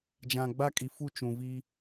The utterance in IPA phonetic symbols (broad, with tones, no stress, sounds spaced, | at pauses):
d͡ʒ ã˨ ɡ͡b a˦ kʼ i˨ f u˦˨ t͡ʃ ũ˨ v i˦